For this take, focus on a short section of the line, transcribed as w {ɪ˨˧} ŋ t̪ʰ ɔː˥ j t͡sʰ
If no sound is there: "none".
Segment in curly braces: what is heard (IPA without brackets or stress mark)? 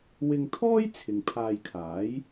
ɪ˧